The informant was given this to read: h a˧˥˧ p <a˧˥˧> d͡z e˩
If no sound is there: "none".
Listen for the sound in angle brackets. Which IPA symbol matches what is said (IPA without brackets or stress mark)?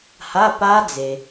a˦˥